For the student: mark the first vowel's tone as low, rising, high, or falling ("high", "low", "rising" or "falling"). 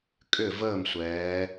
falling